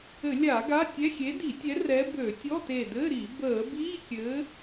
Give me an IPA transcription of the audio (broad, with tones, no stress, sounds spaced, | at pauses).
ɘ˧˩˧ lʲ a˧˩˧ ɡ a˧˥˧ tʲ ɛ˧˥˧ xʲ e˨˦ d i˧˩˧ tʲ ɛ˨˦ r ɛ˨˦ b ø˧˩˧ tʲ ɔ˧˥˧ t e˧˩ d ɘ˧˥˧ ɾ i˧˩˧ b əː˧˩˧ b iː˧˥˧ kʲ ɘː˨˦